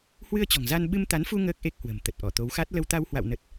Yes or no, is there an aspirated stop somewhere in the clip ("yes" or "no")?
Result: no